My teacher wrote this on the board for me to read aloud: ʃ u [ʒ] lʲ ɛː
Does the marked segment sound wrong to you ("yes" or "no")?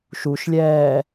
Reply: yes